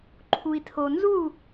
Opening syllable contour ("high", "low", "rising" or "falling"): low